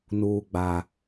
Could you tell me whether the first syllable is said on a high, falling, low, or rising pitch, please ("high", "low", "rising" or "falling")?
low